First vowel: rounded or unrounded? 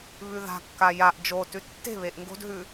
rounded